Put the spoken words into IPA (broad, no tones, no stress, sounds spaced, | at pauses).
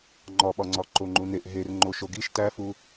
ŋ͡ǃ ɒ ɓ ɒ ŋ͡ǀ ɒ ǃ o ŋ͡ǃ u n e ʔ ɦ e r ŋ͡ǃ o ʃ o ɡ i ʃ t æ f u